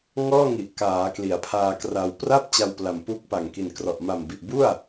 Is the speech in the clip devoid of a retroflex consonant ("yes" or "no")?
yes